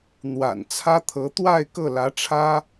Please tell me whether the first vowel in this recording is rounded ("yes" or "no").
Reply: no